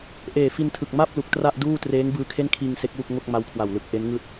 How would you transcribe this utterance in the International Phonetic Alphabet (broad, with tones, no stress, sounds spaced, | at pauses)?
ʔ eː˨˩ f i˧ n tʰ ɯ˨˩ k̚ m a˥˩ p̚ l u˨˩ k̚ t r a˥˩ ʔ d uː˥˩ t r eː˦˥ ŋ b ɯː˧ kʰ e˥˩ n kʰ iː˧ ŋ s e˦˥ k̚ w u˥˩ k̚ ŋ o˥˩ k̚ m a˦˥ w kʰ w a˨˩ w l ɯ˨˩ k̚ ʔ e˦˥ n ŋ ɯː˥˩ t̚